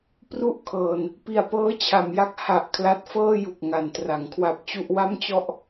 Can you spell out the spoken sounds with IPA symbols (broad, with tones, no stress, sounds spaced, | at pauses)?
p r u˥˩ ʔ kʰ ɤː˧ n | p i˨˩ a̯ p ɤː˦˥ t͡ɕʰ a˩˦ m j a˦˥ k̚ h a˨˩ ʔ kʰ l a˦˥ t̚ f ɤː˥˩ j u˨˩ k̚ ŋ a˩˦ n t r a˩˦ ŋ kʰ w a˦˥ p̚ t͡ɕ u˥˩ ʔ w a˥˩ m t͡ɕ ɔ˥˩ ʔ